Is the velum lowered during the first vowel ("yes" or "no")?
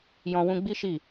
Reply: yes